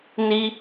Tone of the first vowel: high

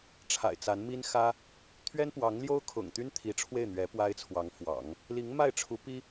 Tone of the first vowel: low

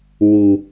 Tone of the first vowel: low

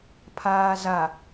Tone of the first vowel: low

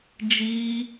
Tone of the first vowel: high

